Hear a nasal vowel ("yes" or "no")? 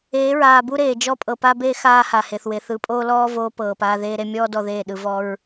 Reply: no